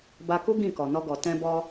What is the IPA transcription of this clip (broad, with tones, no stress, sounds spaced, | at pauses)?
b a˧ k u˦ ɡ ĩ˦˨ k ɔ˨ n ɔ˧ ɡ ɔ˨ t ɛ̃˧ b ɔ˧